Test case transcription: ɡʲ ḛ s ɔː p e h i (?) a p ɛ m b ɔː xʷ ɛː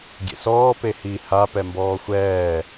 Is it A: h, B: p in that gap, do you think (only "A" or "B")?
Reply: A